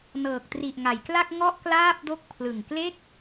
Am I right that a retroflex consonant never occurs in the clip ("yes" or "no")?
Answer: yes